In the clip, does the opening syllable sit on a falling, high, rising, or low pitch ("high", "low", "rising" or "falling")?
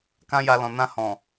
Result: high